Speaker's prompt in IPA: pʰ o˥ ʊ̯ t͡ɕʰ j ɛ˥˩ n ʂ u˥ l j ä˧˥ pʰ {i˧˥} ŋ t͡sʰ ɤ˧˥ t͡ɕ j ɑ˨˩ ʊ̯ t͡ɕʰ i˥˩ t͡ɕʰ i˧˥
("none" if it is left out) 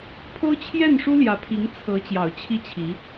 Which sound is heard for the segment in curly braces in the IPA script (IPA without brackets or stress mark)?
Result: i˧˥